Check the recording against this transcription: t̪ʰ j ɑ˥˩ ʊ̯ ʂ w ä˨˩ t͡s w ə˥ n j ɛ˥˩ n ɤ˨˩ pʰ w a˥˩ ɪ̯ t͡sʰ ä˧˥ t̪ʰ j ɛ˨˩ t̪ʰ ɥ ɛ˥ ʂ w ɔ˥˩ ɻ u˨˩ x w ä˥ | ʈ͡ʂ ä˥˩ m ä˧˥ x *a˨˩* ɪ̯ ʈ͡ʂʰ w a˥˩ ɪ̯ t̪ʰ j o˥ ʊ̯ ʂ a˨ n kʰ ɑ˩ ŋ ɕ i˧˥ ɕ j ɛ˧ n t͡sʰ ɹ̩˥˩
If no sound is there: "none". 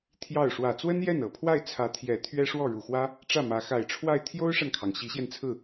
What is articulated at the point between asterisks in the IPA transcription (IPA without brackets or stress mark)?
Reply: a˨˩